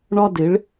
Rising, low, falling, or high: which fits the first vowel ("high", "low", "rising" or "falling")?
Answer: high